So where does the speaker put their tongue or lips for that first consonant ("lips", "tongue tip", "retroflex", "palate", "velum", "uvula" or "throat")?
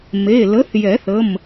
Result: lips